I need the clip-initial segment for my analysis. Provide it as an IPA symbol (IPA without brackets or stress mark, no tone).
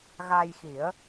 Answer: ɣ